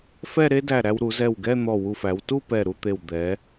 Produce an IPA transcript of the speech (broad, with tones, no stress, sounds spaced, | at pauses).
f ɛ˥˧ ɾ e˥ d æ˧˩ ɾ æ˧ w ɾ u˩˧ z ɛ˧˩ w ɡ ɛ˥˧ n̪ ɔ˧˩ w u˧˩ f æ˩˧ w t u˥˧ p ɛ˧˩ ɾ u˥˧ t̪ e˧˩ w d̪ ɛ˩˧